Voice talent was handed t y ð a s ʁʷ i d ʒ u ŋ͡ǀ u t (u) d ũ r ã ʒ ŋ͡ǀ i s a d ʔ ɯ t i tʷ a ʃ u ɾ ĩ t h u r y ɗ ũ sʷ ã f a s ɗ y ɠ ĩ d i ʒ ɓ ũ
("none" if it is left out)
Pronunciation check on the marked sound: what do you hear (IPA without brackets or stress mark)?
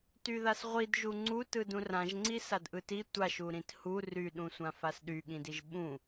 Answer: ɯ